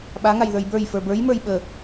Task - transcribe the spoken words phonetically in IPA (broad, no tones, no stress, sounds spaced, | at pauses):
ɓ a ŋ a j ð ə˞ j b ə˞ j f ə˞ b ə˞ j m ə˞ j ɓ ə